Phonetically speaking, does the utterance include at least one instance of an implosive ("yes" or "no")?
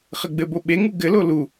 yes